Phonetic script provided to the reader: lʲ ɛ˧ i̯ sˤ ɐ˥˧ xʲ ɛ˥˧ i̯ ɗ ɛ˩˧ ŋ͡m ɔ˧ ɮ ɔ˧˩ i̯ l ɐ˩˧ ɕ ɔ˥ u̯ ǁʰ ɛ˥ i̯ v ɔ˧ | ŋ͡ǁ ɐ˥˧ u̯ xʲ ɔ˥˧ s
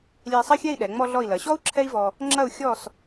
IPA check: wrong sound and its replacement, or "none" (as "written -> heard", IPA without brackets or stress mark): none